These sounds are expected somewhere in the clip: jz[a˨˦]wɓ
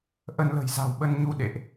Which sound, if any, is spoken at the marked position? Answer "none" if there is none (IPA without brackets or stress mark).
a̤˨˩